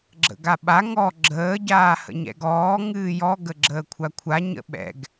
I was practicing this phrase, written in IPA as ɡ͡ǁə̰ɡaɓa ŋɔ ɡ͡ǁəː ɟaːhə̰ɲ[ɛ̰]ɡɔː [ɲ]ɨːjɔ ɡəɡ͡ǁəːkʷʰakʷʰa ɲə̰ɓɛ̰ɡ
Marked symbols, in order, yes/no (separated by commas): yes, no